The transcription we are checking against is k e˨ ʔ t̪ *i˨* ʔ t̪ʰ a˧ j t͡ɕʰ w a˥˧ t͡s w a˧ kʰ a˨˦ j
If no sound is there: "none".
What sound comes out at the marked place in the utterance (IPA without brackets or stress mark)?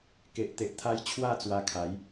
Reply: e˨